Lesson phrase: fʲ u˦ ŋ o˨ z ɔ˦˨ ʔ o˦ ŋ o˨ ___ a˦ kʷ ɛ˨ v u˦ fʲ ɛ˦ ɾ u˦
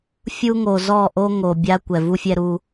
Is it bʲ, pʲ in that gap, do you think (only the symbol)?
bʲ